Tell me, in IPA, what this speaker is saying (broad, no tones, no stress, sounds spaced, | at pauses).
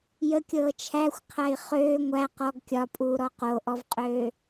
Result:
j ə kʲ ɤː t͡ʃʰ æ xʷ qʰ æ i̯ χ øː ŋʷ æ q ɔ ɡ kʲ ɒ pʼ uː ɾ ɔ q o ʔ ɔ v qʼ øː